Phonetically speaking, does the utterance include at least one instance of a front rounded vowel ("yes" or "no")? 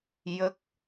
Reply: no